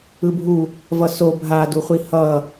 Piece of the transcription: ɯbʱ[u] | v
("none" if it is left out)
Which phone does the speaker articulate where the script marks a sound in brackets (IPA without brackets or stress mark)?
u